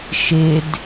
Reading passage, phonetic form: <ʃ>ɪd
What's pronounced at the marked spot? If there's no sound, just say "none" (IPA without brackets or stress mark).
ʃ